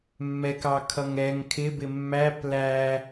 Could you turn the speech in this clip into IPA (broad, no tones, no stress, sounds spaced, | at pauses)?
mː ɛ k ɑ kʰ ʌ ŋ ɛ ŋ kʰ ɪ b ɪ mː æ p l æ